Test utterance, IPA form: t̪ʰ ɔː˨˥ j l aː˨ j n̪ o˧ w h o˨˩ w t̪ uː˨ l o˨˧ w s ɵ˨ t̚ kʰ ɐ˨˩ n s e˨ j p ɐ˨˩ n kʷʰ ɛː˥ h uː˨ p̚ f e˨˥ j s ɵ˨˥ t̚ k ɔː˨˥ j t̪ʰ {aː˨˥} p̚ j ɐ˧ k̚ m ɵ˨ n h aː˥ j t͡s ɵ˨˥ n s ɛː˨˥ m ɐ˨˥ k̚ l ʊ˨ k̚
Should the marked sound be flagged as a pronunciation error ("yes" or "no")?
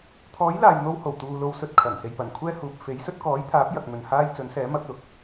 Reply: no